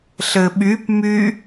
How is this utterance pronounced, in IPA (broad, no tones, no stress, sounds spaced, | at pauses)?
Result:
ɬ ɘ ɓ y p m y